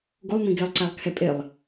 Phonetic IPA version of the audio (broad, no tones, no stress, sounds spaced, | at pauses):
ɡ o lˠ n ĩ ɡ e lˠ ǀ æ lˠ kʰ ɛ pʼ e lˠ